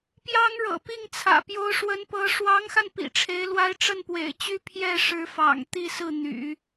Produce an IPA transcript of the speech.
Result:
p j ɑ˥ ŋ ɻ ɤ̰˨˩ p i˥˩ ŋ t͡sʰ ä̰˨˩ p j o˧˥ ʊ̯ ʂ w ə˧˥ n p ɤ˧˥ ʂ w ɑ˧˥ ŋ x a˧ n p ḭ˨˩ ʈ͡ʂʰ e˧˥ ɪ̯ l w a˥ ɪ̯ ʈ͡ʂ ə˥˩ n p w ḛ˨˩ ɪ̯ t͡ɕ y˥ pʰ j ɛ˥˩ ʂ ɻ̩˧˥ f ɑ̰˨˩ ŋ t̪ i˥˧ s ɹ̩˥˩ n̪ y̰˨˩˦

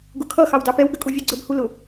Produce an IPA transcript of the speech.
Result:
ɡ ʊ kʰ ʌ x ɑ w d ɑ p ɛ w ɡ ə kʼ u vʲ ɛ ɡ͡ǀ ə b h u l ʊ

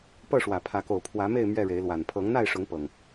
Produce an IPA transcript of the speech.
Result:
p ɤ˥˨ ʂ w ä˨˩ pʰ ä˨˦ k o˨˩ ʊ̯ pʰ w ä˨˦ m e˥˨ ɪ̯ m ɥ ɛ˥˨ ɻ e˨˦ ɪ̯ l w a˨˩ n pʰ ɤ˨˦ ŋ n̪ a˥˨ ɪ̯ ʂ ʊ˨˦ ŋ p ɤ˨˩ ŋ

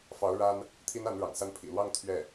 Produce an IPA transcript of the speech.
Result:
f ɑ˧˥ ʊ̯ ɻ a˥ n | t̪ʰ i˥ n a˧˥ n ɻ ɑ̰˨˩ ŋ s a˥˩ n pʰ ḭ˨˩ l w ɑ˥˧ ŋ t̪ʰ ɥ ɛ˥˩

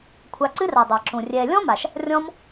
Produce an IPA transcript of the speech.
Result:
kʷʰ a˧ ǀ ɨ˦ r a˨ dˤ a˨ ǁ ũ˨ rʲ ɛː˧ lʲ ɔ̃˦ m a˨ ʃ | rʲ ɔ̃˦ m

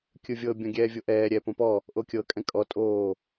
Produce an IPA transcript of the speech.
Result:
kʲ ɯ vʲ ɤ bʲ ɔ̃ ɡʲ ɛː vʲ o ʔ ɛː ɾʲ ɛ p õ p ɔ | ʔ o kʲ ɤ kʼ ɛ̃ kʼ ɔ tʼ oː

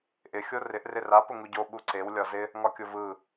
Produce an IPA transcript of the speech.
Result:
ʔ ɪ xʲ o r ɪ ʔ r ɪ r a p ʊ ŋ u ɟ o ɓ u ǀ e w lʲ ɒ z ɪ | ŋ ɒ kʲ ʊ v ɯ

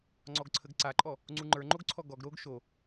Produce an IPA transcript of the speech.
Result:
ŋ͡ǀ ɔ ɡ ǀʰ ə ɡ ǀ a ǃʼ ɔ | ŋ͡ǀ u ŋ͡ǃ ə˞ ŋ͡ǃ o ɡ ǀʰ ɔ ɡ ɔ ɡ ɾ o ɡ ʃ o

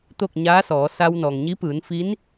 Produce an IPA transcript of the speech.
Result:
t̪ o˥˨ k̚ ɲ aː˧˥ s ɔː˩˧ s a˧ w n ɔː˩ ŋ ɲ i˧˥ p ɯː˩˧ n f iː˧˥ n

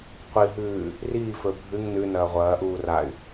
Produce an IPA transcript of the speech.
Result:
qʷ i ɦ ʉː | r iː f ɵ bʱ ɨ ŋ n ʉ n ɐː ʁʷ ɐː ʔ uː r a y̯

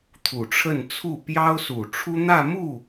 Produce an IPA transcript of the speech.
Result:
t̪ʰ u˨˩ ʈ͡ʂʰ ə˥˧ n t͡sʰ u˥˩ p j ɑ˥ ʊ̯ s u˨˩ ʈ͡ʂʰ u˥ n̪ ä˥˧ m u˥˩

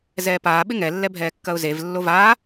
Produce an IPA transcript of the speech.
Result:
z ɛː p aː ɓ ɪ ŋ ɛ lː ɛ bʱ ɛː kː ɐ ʊ̯ z e v lː o v aː

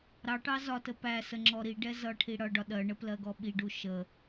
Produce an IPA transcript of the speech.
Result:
ɾ ɑ ʈ ɑ z ɒ t ə p æ s ə ŋ͡ǁ ɔ ɾ i ɖ ɛ z ʌ ʈʰ i ɽ ʌ ɖ ɒ ɗ ɜ ɳ ə p l ɜ ɡ ɔ ɓ i ɖ u ʃ ə

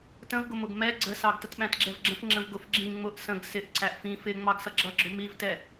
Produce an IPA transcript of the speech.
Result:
t ə̃ v ɡ ʊ m ʊ ɡ m ɛ ɡ͡ǀ ə s ɑ ɡ t ə t ɓ æ̃ t ɡ͡ǁ ɛ v ɡ͡ǁ ə̃ f ŋ͡ǁ ə̃ v ɡ ʊ f ɡ͡ǁ ĩ ŋ͡m ʊ ʔ s ə̃ ɡ s ɪ ʔ ǀ æ ʔ f ĩ f ɪ ŋ͡m ɑ ɡ s ʌ ɡ͡ǁ ʌ ɡ͡ǁ ʊ m i v t ɛ

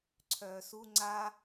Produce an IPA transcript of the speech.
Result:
ǀʰ œː s u ŋ͡ǀ a

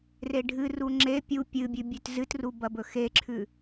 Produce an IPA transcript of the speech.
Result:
r e ɖʱ ɨ r u ŋ͡ǁ e pʲ u pʲ ɨ bʲ ʉ bʲ ʉ t z ɨ t r u b ɐ b ɵ x e ǁʰ ʉ

